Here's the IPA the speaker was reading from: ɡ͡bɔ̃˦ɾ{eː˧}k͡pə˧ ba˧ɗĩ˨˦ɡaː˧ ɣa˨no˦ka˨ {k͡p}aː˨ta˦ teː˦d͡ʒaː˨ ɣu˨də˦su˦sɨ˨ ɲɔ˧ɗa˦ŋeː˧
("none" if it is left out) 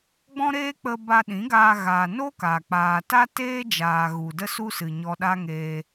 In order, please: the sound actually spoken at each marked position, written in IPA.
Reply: eː˦, k͡p

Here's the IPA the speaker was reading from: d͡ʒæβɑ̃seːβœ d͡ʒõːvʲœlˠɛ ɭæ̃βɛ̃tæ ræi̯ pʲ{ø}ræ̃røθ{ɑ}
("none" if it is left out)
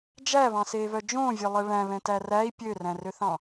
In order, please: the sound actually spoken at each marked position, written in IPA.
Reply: ø, ɑ̃

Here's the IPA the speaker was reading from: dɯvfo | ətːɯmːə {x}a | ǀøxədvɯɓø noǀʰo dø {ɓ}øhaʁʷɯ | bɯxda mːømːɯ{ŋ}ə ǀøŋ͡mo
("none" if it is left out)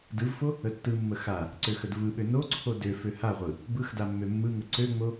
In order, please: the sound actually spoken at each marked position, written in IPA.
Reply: x, f, ŋ

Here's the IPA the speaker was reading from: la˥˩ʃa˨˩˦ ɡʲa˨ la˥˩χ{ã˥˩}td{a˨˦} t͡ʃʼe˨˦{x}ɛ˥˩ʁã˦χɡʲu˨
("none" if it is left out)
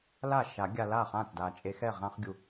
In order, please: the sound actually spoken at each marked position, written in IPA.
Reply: ã˥˩, a˨, x

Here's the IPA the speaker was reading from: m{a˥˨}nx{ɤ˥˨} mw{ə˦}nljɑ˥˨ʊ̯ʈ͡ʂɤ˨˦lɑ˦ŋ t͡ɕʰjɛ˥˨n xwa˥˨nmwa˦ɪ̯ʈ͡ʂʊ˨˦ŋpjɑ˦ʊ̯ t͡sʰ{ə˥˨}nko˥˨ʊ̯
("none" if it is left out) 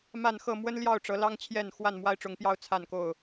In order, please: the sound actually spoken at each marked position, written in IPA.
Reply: a˥˨, ɤ˥˨, ə˦, a˥˨

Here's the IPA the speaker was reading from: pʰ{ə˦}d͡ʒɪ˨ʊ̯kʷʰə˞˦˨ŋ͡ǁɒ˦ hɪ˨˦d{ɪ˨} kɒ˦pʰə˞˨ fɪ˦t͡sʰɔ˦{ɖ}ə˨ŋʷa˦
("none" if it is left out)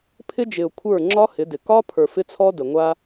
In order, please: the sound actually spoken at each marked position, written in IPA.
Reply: ɪ˦, ɪ˨, d

